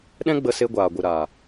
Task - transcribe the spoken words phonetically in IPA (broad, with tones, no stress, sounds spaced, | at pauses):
ɗ ɛ̃˦ ɡ͡b ə˧ s e˧ ɡʷ aː˨ ɡʷ ɨ˨ ɾ aː˨